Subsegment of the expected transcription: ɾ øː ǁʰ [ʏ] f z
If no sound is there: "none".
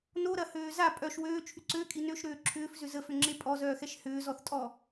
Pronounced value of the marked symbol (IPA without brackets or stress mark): ʏː